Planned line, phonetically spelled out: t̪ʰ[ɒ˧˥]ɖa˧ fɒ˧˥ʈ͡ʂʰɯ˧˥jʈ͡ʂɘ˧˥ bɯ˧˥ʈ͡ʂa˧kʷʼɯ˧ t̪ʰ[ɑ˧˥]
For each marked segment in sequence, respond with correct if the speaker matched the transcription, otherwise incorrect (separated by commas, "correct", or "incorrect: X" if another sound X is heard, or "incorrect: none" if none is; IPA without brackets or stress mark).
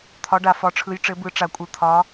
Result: correct, incorrect: ɒ˧˥